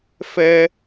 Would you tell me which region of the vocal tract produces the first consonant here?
lips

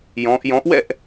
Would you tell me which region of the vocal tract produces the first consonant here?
palate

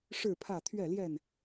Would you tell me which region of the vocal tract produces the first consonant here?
retroflex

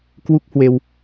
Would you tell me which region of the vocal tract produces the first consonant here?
velum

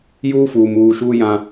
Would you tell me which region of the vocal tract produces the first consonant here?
palate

